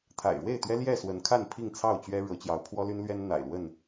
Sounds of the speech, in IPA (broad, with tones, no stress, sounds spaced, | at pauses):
t̪ʰ a̰˨˩ ɪ̯ ɻ w e˥˨ ɪ̯ t̪ ɥ ɛ˦ l j ɛ˥˨ s w ə˨˦ n kʰ a˥˨ n pʰ i˥˨ ŋ t͡sʰ ɑ˥˨ ʊ̯ t͡ɕ ɥ ɛ˦ ɻ ɤ˨˦ t͡ɕ j ɑ˨˦ ʊ̯ pʰ w ɔ˦ l y˦ n l ɥ ɛ˦ n n̪ a̰˨˩ ɪ̯ l w ə˥˨ n